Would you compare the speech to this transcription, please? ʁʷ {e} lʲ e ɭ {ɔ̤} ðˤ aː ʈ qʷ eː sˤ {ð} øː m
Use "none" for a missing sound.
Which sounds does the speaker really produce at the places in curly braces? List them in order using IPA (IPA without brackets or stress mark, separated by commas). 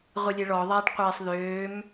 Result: i, ɔ, ð